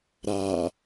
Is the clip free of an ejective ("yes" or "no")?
yes